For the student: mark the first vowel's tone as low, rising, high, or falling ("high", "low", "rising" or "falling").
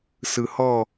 low